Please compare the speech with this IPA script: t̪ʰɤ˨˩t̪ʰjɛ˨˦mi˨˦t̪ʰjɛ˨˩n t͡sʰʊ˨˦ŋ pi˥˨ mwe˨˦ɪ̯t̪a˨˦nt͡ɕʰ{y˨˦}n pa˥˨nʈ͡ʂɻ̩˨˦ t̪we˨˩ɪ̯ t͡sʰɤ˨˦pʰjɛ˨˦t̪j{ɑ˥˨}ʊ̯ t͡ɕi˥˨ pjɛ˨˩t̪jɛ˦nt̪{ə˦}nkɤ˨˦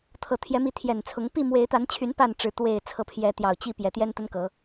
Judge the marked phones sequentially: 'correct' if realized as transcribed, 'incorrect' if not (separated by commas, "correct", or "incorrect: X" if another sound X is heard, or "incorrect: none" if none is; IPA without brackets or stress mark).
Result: correct, incorrect: ɑ˨˩, correct